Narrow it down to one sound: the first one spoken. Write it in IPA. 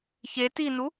ç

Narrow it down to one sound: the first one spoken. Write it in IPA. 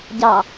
ɟ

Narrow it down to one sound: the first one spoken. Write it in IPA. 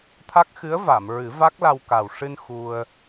t̪ʰ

